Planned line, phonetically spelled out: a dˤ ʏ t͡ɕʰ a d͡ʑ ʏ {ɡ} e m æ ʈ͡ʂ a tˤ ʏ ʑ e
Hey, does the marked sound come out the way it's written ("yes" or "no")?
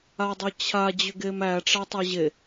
yes